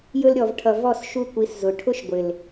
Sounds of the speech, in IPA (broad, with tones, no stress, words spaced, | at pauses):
jɵ˧lɾʲɔ˨v ʈʰʌ˨ vɔ˦˨s ʃu˧kʷi˨˦s zʊ˨ ʈʰʊ˦ʃɡʷɪ˨l